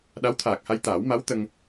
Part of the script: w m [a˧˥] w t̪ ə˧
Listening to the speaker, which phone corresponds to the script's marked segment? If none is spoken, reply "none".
a˧˥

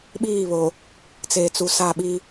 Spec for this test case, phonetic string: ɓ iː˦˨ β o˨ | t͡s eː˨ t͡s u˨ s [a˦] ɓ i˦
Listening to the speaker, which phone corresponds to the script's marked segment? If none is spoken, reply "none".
a˦˨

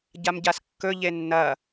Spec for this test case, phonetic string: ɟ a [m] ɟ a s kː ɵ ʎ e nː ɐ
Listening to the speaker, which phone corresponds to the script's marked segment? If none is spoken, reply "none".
m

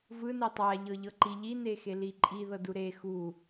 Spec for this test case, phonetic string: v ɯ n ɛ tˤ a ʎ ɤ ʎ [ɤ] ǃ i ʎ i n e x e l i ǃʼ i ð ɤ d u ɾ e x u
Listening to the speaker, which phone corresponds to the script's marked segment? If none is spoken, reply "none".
ɤ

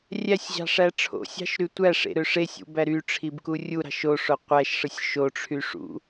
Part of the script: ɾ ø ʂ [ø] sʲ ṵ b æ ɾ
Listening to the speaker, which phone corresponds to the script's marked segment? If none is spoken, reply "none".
e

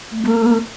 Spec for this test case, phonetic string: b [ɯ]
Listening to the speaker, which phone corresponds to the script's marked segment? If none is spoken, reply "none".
ɯ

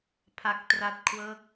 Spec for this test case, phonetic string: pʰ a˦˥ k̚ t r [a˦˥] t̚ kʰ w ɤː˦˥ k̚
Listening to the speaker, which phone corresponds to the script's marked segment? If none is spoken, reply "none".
a˦˥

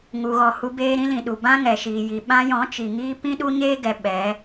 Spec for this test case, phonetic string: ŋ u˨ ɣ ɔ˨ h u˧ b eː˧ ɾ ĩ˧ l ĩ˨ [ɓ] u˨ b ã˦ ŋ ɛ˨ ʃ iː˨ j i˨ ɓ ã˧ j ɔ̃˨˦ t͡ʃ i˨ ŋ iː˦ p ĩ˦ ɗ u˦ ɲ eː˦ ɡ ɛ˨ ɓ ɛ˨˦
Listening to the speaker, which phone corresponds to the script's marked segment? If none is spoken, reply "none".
ɗ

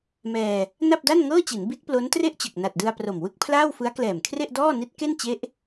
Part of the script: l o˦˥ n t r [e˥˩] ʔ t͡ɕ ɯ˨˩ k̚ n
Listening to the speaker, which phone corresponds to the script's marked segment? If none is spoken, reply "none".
e˥˩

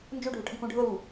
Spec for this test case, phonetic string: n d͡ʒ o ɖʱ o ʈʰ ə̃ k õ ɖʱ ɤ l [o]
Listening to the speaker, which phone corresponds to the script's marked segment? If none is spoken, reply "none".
u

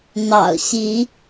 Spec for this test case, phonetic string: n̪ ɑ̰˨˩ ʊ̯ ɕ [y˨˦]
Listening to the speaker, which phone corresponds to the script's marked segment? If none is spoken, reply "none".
i˨˦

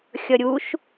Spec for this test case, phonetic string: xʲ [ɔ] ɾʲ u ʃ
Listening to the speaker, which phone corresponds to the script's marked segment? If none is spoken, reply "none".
ʌ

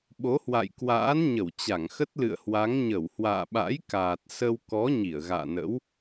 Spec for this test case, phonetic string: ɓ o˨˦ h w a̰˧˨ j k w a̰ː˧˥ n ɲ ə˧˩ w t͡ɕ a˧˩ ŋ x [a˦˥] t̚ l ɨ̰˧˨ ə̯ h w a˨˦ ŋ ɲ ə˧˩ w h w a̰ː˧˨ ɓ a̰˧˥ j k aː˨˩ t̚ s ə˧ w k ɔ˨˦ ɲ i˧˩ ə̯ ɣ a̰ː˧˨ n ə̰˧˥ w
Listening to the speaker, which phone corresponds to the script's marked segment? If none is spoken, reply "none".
ə˦˥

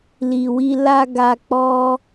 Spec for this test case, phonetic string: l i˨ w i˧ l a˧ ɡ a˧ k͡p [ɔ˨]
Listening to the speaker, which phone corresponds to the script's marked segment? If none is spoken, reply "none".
ɔ˦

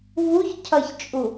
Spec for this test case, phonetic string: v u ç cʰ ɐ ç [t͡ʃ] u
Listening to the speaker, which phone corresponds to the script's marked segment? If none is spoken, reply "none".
t͡ʃʼ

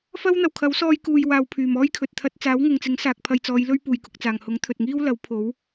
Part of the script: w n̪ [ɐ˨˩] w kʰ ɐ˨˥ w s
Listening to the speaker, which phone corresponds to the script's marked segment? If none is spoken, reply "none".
ɐ˨˩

